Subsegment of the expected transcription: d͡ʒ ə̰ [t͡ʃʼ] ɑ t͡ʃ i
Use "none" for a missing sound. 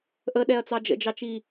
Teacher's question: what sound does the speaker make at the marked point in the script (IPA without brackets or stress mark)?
d͡ʒ